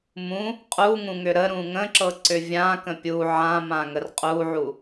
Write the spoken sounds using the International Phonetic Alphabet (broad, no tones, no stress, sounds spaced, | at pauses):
m ũ | qʼ u ŋ ũ ŋ ʏ ɾ ə ɾ ũ ŋ ə̃ ǁ ɤ ǀ ʏ vʲ ã k ə̃ pʲ u ʕ ã m ã ŋ ə r qʼ u ʕ u